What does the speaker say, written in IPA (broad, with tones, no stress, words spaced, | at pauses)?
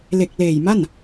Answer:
le˨˩k̚ leː˨˩jma˥˩n